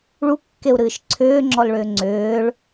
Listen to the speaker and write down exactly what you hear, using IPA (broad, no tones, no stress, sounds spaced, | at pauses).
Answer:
ɭ u kː e u̯ ɾ ɨː ʃ ǀʰ ʏː ŋ͡ǁ ɔ l ɭ ʏː ŋ͡ǀ ʏː ɭ